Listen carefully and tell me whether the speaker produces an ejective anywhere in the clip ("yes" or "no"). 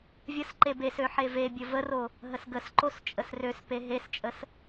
yes